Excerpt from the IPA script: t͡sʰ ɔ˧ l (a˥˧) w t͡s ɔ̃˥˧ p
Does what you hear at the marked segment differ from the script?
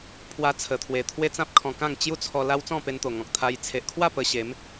yes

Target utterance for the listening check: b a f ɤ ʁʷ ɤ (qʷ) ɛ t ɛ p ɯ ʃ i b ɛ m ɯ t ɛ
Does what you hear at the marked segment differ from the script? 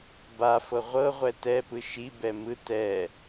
yes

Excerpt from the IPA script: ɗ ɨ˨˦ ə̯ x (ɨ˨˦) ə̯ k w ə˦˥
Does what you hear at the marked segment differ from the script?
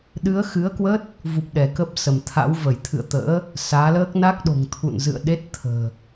no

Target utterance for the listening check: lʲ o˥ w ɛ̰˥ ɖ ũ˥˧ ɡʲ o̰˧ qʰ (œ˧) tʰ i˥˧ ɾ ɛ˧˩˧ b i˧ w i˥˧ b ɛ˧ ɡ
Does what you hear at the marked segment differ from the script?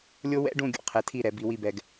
yes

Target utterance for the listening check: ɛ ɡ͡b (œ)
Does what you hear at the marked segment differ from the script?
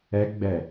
yes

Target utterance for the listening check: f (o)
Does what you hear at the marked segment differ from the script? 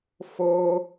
no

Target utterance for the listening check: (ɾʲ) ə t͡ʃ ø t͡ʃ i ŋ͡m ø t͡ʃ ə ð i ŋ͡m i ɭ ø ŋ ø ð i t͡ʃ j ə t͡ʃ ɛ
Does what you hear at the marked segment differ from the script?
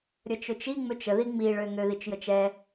no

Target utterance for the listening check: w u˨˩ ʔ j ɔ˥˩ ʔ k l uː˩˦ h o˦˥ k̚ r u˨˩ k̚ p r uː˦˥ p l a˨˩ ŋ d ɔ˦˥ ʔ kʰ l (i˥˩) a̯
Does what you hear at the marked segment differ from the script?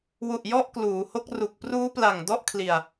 yes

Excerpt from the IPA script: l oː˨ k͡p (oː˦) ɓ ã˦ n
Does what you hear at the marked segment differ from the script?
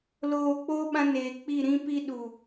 no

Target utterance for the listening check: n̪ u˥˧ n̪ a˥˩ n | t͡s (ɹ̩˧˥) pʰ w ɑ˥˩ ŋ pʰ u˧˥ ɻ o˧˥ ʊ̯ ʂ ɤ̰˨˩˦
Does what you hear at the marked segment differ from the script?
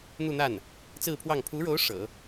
yes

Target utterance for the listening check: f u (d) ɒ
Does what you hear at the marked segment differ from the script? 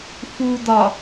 no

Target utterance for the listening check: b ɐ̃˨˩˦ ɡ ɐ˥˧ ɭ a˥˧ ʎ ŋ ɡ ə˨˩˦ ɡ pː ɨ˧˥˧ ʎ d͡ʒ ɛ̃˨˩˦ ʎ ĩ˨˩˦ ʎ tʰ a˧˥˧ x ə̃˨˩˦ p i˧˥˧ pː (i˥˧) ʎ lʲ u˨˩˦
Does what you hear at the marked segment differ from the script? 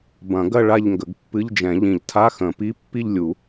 no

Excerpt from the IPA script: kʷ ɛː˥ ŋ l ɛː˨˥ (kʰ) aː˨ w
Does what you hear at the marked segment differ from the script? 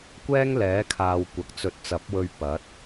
no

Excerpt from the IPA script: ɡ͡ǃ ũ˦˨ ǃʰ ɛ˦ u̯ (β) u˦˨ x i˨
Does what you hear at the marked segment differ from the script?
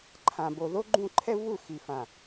no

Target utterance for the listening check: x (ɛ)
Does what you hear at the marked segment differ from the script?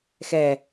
no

